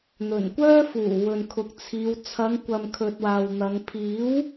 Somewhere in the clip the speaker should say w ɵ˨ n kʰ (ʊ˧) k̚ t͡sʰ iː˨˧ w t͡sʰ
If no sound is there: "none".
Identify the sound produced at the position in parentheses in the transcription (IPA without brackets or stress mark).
ʊ˨˥